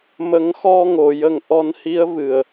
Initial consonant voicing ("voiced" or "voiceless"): voiced